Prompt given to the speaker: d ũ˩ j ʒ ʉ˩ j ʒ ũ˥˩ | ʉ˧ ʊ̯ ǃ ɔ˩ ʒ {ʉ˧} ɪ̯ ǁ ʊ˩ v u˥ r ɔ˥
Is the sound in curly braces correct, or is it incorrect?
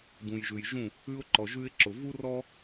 correct